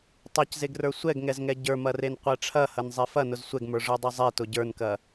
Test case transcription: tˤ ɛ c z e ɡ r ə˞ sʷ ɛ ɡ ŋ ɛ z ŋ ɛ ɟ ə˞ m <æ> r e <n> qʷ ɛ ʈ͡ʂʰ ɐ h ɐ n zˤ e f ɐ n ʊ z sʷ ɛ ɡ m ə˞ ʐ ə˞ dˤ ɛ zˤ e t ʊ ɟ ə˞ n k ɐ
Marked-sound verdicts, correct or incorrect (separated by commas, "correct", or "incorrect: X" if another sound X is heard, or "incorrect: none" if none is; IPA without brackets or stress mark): incorrect: ɐ, correct